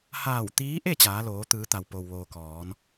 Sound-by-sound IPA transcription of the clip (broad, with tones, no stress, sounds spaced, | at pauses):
h aː˧˩ w t̪ iː˧˥ ʔ e˥˨ t͡ɕ aː˩˧ l oː˩˧ t̪ ɯː˩˧ t̪ a˩ w p o˩ w ʋ oː˩ k ɔː˩˧ n